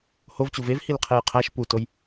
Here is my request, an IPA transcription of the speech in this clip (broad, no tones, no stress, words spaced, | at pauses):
hovt͡ɕu vevhilqʰej qʰæʃ putoj